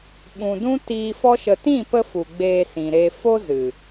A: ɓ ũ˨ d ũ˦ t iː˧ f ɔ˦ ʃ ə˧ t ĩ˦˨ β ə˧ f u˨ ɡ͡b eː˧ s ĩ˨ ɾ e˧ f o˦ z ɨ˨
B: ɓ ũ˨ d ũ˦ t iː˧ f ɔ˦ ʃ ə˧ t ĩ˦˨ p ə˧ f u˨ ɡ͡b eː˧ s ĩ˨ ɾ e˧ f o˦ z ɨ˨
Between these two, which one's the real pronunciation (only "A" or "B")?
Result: B